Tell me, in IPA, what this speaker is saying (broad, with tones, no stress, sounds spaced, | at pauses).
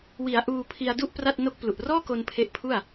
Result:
w i˩˦ a̯ ʔ uː˧ pʰ i˧ a̯ d u˥˩ ʔ p r a˥˩ t̚ n o˥˩ k̚ p l u˨˩ ʔ r ɔː˥˩ k o˧ n pʰ e˦˥ ʔ pʰ u˥˩ a̯